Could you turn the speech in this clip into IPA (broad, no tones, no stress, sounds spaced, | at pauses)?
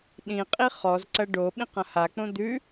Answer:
ɗ ĩ qʼ i χ ɔ z ǀ ɐ ɖ o ɓ ĩ q ɐ̃ h a k͡p õ d̪ ʉ